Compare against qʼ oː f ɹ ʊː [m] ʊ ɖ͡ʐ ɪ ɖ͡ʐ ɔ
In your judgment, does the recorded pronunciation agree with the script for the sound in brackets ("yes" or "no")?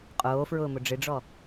yes